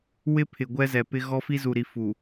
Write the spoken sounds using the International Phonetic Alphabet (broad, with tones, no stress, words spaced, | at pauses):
wɪ˦pʰɪ˨ ɡʷɛ˦zɛ˨pɪ˦ ɣɔ˦fi˦zu˨ɾi˨ fu˨